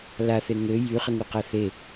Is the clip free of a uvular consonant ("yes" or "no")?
no